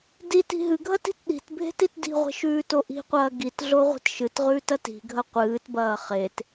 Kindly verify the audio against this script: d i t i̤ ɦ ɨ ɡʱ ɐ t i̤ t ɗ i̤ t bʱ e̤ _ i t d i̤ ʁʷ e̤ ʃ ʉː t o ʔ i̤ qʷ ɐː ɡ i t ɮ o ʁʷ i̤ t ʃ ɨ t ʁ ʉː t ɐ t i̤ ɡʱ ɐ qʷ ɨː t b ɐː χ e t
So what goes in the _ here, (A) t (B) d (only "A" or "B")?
A